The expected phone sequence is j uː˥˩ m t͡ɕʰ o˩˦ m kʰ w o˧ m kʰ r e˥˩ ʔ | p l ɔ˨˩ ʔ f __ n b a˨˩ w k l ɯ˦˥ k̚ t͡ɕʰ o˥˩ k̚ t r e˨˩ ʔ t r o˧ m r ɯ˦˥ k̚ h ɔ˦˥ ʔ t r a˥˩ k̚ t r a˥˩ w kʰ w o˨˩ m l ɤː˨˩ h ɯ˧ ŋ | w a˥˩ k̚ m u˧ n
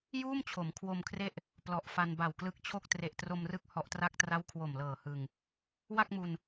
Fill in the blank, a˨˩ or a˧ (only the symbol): a˧